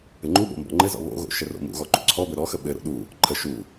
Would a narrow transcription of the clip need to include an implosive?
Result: yes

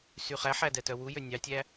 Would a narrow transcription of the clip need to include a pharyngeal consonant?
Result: yes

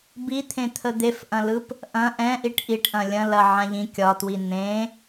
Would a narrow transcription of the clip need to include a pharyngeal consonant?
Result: yes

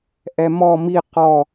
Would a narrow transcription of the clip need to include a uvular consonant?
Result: yes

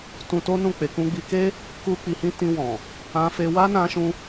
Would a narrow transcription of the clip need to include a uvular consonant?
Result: no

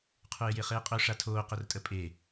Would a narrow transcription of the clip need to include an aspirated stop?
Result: yes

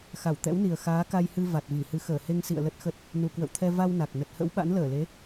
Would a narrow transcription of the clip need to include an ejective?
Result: no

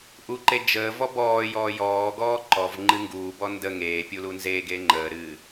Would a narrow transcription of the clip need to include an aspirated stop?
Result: no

